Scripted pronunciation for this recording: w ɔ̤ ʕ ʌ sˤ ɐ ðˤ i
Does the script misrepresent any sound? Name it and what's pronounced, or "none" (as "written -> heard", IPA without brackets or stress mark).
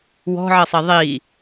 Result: none